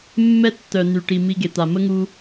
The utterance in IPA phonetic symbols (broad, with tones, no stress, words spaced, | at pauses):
mːɛ˦tːœ˨ ny˨ʈi˨ mi˧ɡe˨t̪a˨ mə˦ŋu˧